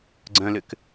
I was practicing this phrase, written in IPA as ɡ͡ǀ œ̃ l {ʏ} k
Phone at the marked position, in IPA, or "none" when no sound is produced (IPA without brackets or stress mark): ʏ